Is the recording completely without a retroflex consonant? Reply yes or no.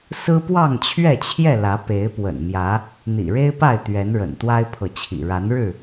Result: no